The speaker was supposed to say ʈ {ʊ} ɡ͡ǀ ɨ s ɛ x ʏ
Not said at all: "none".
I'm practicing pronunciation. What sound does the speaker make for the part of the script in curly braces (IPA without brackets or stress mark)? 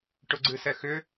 ʊ